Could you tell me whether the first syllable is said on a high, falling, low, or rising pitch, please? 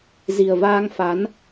low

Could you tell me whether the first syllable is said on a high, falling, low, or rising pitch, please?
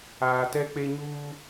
low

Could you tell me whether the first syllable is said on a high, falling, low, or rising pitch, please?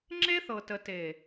high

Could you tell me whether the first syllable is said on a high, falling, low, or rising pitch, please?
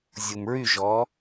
low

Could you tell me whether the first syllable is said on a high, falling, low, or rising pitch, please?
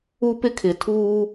high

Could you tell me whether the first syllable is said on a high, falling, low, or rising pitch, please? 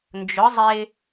rising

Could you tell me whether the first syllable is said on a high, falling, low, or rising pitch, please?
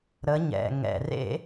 rising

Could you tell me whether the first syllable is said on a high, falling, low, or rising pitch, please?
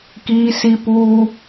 high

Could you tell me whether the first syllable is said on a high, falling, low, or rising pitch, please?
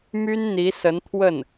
high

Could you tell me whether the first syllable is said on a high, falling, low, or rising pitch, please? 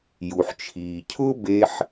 low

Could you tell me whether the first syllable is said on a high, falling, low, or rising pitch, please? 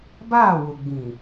falling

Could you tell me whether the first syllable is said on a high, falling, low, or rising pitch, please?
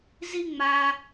high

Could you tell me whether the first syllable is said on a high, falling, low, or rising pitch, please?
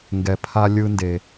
low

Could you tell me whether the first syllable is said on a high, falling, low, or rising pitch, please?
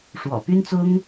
low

